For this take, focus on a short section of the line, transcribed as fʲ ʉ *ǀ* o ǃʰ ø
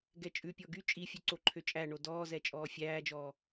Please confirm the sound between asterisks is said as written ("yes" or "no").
yes